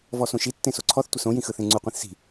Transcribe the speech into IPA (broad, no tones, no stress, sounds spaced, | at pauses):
v ɔ s õ ʃ i tː ẽ s o ǀʰ ɔ θ tʷ ɪ s õ j ĩ x ɯ θ ẽ ŋ͡ǀ u qʷ ĩ θ s i̤